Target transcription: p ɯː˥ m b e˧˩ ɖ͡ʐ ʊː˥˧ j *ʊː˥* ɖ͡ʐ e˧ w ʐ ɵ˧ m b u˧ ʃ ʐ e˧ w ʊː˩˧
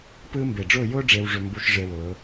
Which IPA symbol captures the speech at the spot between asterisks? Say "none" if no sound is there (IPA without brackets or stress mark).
ʊː˥